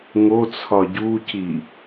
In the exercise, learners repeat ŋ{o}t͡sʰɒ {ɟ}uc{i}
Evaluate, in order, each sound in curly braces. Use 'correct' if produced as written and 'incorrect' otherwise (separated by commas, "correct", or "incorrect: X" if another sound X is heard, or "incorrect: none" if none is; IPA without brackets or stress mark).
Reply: correct, correct, correct